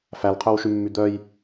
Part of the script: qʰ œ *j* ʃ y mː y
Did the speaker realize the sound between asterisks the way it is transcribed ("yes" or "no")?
no